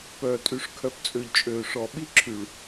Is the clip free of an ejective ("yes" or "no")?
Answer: no